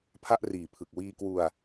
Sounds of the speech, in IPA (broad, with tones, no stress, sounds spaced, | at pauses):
pʰ a˥˩ ʔ r iː˨˩ pʰ ɯ˨˩ k̚ w iː˧ k w u˧ a̯